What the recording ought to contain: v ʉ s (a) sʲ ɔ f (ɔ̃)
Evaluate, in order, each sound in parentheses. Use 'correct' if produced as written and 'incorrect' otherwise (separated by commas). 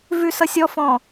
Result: incorrect, correct